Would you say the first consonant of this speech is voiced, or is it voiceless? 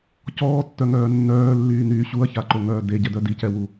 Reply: voiceless